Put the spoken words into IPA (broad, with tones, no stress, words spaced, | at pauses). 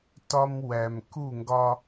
tɒ˦m wæ˨m ku˦˨ŋɡɒ˦